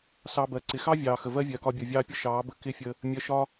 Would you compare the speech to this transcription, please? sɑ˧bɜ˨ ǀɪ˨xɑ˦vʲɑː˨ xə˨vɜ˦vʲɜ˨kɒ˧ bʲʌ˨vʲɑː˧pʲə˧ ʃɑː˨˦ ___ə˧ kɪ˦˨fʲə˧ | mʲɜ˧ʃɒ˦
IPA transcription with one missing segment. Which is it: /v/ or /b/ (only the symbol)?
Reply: b